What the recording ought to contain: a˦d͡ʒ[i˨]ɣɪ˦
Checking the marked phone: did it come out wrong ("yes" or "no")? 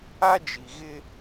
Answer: no